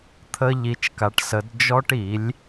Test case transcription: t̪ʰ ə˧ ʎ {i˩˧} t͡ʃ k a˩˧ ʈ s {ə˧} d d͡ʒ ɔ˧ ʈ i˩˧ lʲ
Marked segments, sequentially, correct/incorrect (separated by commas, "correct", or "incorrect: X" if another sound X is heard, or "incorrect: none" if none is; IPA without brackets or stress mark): correct, incorrect: ə˩˧